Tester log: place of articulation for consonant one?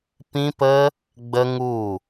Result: labial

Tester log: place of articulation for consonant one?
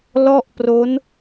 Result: alveolar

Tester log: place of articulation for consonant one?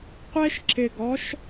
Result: uvular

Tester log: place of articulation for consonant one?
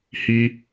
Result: glottal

